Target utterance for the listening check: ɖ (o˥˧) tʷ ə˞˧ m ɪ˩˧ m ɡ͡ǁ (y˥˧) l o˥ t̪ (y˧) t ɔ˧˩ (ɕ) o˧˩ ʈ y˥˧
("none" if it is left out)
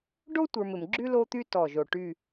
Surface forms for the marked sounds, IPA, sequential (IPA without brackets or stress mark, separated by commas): o˥, y˥, y˥, ʒ